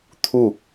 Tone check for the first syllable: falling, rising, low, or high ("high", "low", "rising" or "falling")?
falling